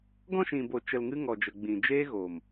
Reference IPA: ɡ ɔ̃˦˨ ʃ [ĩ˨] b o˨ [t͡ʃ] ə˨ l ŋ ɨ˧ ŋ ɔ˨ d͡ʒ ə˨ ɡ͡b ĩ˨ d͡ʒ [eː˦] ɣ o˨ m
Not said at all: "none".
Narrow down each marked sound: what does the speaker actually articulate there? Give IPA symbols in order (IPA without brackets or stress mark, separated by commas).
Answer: ĩ˨, t͡ʃ, eː˦